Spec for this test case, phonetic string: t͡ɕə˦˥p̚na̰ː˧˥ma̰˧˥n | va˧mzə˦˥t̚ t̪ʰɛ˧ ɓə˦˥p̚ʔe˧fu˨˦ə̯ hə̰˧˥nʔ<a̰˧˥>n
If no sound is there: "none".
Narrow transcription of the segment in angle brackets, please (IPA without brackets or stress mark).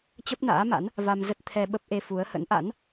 a̰˧˥